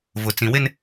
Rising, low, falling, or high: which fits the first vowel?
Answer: low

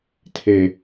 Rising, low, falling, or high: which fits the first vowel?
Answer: low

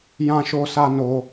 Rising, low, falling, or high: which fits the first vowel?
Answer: high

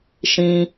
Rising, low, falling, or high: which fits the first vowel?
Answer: high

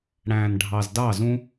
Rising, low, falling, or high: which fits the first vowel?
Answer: low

